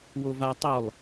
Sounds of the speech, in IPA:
w o v a tˤ o lˠ

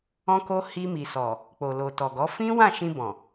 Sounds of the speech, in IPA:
ɔ̃˦ k o˦ h i˧ m i˨ s ɔ˨ | k͡p o˨ l o˨ t ɔ˨ ɡ ɔ˨˦ f ĩ˦ w ã˦˨ ʃ ĩ˧ b ɔ̃˨

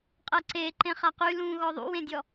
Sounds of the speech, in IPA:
qʼ ɜ ǀ e ǃ ẽ χ a q y l ũ ɣ ɔ ðˤ ṵ w ẽ dʲ ɔ

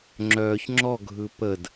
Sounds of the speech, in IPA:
ŋ͡ǁ œː ç ŋ͡ǁ ɔ ɡʱ ɯ p ə d

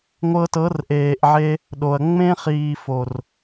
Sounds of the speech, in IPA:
ŋʷ ɤ˧ t ɤ˨˦ r ʔ eː˨ ʔ ʕ e˧ | ɗ o˨ ɐ̯ ŋ͡m ẽ˦ χ iː˨ f o˨ r

